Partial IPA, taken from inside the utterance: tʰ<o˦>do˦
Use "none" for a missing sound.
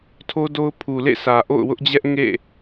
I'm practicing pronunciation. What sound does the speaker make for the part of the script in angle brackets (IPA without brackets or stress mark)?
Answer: o˦